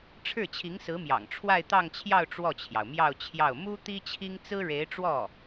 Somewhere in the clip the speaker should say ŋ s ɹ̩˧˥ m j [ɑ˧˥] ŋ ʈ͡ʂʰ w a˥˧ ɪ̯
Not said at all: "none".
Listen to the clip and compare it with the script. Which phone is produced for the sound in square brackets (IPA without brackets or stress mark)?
ɑ̰˨˩